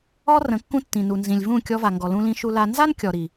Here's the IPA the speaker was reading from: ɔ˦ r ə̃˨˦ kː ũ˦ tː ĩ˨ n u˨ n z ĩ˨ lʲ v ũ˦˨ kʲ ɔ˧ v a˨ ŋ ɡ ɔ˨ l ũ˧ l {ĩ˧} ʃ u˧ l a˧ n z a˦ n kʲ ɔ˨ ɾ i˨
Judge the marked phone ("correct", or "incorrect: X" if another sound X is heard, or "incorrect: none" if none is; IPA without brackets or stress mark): correct